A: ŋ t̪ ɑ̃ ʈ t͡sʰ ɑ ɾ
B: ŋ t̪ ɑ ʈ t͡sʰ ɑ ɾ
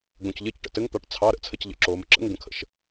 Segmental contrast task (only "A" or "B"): B